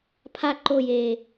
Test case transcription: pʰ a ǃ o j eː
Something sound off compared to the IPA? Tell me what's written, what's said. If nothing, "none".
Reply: none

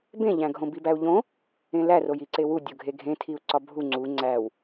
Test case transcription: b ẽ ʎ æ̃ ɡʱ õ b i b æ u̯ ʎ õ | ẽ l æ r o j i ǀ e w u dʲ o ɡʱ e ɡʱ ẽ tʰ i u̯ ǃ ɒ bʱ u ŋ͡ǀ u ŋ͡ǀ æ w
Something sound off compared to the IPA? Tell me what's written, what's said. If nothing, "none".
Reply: ǃ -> ǀ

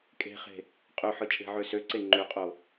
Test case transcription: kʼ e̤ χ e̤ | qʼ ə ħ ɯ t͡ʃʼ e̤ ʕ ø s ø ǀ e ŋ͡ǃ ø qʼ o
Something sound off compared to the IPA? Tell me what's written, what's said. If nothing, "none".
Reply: ə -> ø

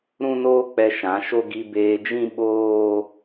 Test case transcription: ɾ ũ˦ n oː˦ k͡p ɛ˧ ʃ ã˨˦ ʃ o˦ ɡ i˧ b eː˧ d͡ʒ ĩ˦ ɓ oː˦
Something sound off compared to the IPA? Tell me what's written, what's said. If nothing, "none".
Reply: none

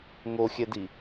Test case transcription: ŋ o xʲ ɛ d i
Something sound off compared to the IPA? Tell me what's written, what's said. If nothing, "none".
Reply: none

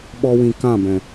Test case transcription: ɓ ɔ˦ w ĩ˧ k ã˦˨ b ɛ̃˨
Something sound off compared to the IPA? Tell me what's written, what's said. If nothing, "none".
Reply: none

